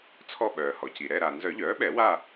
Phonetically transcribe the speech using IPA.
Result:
t͡sʰ ɔ˦˨ ɓ œː˩ h ɔ˩ c i˩ ɾ ɛ˦˨ ɾ a˩ n z œ˨˩˦ ʎ œː˩˥ ɓ ɛ˨˩˦ w a˦˨

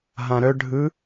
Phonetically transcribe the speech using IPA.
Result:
ɦ ã ɾ œ ɖʱ ɯ

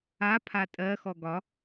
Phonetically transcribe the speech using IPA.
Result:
a pʰ a tʼ ɜ x ɔ ɡ ɒ

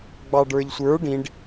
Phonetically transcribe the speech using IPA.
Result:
ɡ͡b ɑ ɖ ə˞ ʎ sʷ ə˞ ɖ ĩ ɖ

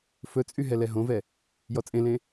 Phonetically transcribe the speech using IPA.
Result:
f ɵ t͡sʼ y ɦ ɛ l ɛ ɦ õ v ɛ | j ɔ t͡sʼ ẽ l ẽ

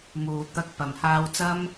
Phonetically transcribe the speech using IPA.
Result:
m uː˨ t̪ ɐ˨˥ k̚ p ɐ˨˩ m h aː˧ w t͡s ɐ˥ m

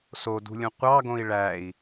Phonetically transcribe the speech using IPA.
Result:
s o d ṳ lʲ ũ qʷ ɑ ɡ õ i̯ ɭ æ i̯

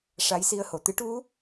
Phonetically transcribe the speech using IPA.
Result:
ʂ a˧˥ j s i˧ ə̯ h o˨˩˨ t̪ ɨ˧˥ ʈ u˧˥

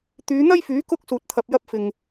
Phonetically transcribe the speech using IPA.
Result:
t̪ yː˨˧ n̪ ɐ˥ j f yː˨˥ k ʊ˥ k̚ s uː˨ t̚ t̪ʰ ɐ˨ p̚ j ɐ˧ p̚ f ɪ˨ ŋ

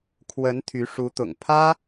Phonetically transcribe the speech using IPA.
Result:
kʰ w ə˧˥ n t̪ʰ y˧˥ ʂ u˧˥ t̪ ʊ̰˨˩ ŋ pʰ ä˥

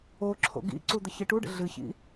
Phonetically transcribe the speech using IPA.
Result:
o ǁʰ o̰ ɡ ḭ ǀ u d̪ ə ç i ʈ u ɖ ə̰ ɮ ɨ ç ḭ

